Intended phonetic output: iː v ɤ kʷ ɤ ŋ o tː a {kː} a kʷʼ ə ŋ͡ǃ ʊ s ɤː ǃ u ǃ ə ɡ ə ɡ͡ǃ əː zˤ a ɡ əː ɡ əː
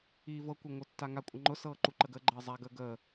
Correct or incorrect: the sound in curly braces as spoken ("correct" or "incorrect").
incorrect